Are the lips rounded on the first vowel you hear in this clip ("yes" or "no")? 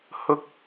yes